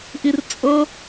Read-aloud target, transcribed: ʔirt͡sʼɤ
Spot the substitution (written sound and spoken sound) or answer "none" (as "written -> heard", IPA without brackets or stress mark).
none